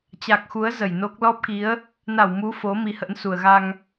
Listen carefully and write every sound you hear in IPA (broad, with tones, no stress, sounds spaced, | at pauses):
t͡ɕ a˨˩ k̚ x u˨˦ ə̯ z ə˧˩ j n o˦˥ k̚ l ɔ˦˥ p̚ k i˨˦ ə̯ | n a˧˩ w m u˨˦ f o˨˦ m i˨˦ h ə̰˧˥ n s u˨˩ ə̯ ɣ a˧ ŋ